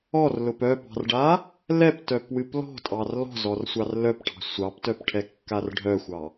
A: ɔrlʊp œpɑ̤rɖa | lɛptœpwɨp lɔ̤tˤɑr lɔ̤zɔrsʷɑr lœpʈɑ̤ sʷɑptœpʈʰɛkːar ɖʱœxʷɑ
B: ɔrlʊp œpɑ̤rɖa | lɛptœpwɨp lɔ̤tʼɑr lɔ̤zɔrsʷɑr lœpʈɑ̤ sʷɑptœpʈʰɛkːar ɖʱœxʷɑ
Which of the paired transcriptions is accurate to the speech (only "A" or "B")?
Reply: B